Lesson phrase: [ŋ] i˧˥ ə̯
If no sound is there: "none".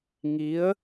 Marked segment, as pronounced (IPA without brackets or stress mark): ŋ